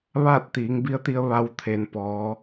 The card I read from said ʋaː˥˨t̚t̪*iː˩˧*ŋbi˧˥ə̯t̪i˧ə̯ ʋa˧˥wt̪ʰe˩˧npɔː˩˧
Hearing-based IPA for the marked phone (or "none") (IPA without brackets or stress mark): iː˩˧